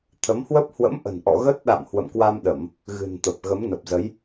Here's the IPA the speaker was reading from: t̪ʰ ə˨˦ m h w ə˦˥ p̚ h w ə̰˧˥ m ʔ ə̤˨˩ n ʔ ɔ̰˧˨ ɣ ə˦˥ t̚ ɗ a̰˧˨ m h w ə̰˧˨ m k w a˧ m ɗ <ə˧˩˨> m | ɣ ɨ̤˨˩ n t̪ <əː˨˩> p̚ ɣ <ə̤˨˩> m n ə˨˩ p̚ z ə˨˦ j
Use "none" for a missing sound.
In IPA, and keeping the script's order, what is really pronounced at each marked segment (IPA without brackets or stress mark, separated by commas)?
ə˧˩˨, ə˨˩, ə˨˦